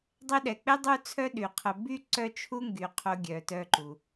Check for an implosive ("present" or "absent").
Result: present